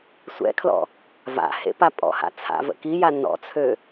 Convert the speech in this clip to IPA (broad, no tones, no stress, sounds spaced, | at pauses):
sʷ ɛ̰ kʰ l ɔ̰ | v a̰ h ḛ p a pʼ ɔ̰ h a̰ t͡sʰ a̰ v ə̰ k i j a n ɔ̰ t͡sʰ ø